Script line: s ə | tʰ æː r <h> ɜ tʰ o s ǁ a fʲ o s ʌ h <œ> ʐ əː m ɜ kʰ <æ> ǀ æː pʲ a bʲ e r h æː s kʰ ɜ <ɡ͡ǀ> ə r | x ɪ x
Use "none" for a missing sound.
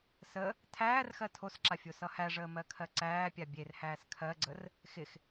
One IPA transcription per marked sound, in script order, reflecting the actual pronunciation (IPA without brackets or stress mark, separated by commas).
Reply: x, æ, ɜ, ɡ͡ǀ